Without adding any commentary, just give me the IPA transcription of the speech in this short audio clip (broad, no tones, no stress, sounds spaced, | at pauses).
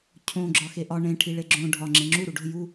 cʰ õ ɡ͡ǁ ɒ x e ʔ ɒ ɳ ẽ ʈʰ i ɭ e ɡ͡ǁ õ ɖʱ ɒ ŋ͡ǁ ẽ ŋ͡ǁ u ɾ u ɖ o̤ j u